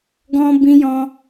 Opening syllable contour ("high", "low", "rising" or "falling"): high